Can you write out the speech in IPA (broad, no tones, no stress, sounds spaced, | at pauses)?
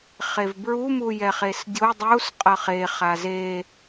χ e v b ɹ u m u j ɛ χ e s dʲ o dˤ u s qʼ ʌ χ e χ a z e